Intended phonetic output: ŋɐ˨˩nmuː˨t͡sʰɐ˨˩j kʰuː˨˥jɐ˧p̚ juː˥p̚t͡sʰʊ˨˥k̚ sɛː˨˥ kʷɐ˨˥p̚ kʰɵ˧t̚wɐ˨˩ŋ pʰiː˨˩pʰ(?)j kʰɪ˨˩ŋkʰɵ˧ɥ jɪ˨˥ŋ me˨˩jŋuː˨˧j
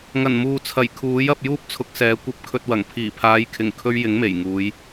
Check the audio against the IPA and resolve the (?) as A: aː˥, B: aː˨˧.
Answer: B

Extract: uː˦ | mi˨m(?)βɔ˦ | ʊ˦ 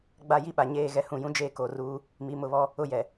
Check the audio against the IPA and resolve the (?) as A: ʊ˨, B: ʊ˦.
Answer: A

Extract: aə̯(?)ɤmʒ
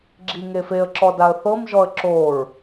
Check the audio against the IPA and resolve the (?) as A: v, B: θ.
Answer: B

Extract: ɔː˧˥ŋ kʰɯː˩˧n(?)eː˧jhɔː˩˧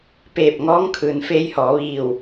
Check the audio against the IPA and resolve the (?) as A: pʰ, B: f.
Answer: B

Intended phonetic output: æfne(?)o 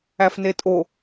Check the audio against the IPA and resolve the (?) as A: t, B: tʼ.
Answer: B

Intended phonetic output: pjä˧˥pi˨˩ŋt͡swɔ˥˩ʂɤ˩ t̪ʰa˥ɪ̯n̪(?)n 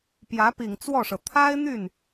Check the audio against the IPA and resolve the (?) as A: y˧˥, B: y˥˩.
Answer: B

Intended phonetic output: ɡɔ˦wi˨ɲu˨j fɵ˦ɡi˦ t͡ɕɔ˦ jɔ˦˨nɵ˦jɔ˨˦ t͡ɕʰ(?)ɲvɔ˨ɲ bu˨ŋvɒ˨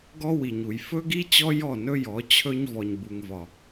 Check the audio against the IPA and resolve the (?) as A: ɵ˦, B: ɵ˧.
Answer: A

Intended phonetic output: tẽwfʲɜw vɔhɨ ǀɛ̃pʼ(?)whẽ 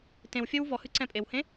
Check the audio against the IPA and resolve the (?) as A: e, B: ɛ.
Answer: A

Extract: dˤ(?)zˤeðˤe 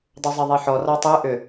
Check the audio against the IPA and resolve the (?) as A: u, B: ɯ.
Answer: A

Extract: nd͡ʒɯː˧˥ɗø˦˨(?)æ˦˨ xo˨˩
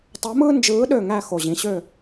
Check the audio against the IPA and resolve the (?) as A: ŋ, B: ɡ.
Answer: A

